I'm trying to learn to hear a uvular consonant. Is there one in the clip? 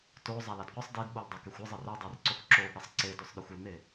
yes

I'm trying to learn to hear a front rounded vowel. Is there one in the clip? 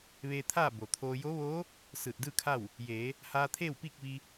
no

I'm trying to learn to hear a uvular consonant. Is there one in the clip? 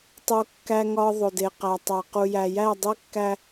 yes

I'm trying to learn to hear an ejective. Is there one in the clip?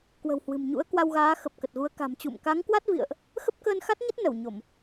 no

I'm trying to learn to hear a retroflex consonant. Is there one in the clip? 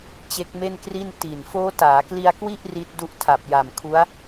no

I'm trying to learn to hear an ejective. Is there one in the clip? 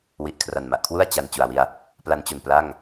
no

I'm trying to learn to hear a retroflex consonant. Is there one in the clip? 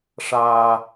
yes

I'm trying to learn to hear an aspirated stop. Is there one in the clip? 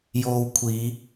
yes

